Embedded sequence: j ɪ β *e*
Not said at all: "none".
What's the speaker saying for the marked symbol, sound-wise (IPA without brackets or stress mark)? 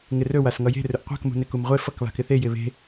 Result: e̤